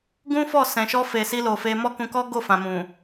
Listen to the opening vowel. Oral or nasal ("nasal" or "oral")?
nasal